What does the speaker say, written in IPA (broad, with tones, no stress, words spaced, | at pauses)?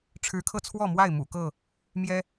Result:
ʈ͡ʂʰɻ̩˨˦kʰɤ˧t͡sʰwɔ˥˨mwa˥˨ɪ̯ mṵ˨˩kɤ˥˨ | mjɛ˦